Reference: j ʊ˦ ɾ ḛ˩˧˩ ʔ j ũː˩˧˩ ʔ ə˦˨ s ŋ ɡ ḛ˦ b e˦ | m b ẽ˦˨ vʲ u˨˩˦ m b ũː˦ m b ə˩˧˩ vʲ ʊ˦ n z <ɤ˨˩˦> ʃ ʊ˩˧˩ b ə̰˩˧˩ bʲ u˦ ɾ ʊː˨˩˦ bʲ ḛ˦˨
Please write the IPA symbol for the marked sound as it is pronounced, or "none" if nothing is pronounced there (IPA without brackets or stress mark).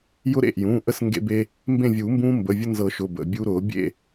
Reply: ɤ˨˩˦